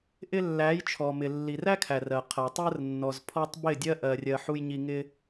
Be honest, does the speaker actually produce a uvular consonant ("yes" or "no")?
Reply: yes